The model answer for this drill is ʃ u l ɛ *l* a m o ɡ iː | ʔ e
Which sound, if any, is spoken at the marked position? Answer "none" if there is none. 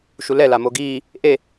l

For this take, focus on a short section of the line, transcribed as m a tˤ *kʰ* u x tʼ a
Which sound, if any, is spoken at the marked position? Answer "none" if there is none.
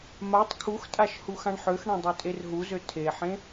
kʰ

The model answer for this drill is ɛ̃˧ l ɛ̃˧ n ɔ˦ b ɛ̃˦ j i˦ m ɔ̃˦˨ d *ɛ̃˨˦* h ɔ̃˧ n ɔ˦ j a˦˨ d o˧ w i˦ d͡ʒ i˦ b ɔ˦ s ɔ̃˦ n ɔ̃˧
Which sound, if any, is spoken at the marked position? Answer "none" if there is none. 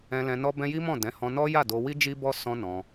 ɛ̃˨˦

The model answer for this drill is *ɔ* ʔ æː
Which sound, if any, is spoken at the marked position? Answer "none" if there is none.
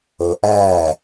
o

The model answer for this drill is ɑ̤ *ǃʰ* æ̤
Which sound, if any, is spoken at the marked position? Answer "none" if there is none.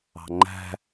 ŋ͡ǃ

